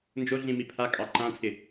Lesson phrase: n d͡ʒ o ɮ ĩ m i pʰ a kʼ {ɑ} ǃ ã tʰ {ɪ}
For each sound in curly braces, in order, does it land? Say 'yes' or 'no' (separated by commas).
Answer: yes, yes